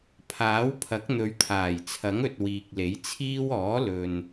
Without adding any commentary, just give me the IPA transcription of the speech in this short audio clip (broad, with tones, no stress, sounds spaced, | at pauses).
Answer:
pʰ aː˨˥ w pʰ ɐ˨˥ k̚ n̪ ɵ˨˧ ɥ t̪ʰ aː˨˩ j t͡sʰ ɐ˨˥ ŋ ɵ˨ t̚ w iː˨ k̚ l e˨˥ j t͡sʰ iː˥ w ɔː˨˥ l ɵ˨ n